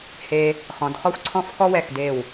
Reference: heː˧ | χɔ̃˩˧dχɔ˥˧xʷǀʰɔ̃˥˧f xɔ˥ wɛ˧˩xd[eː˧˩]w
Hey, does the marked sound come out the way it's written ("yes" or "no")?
yes